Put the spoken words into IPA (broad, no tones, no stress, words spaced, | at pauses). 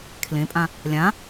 kʰlẽpʼã | lʲã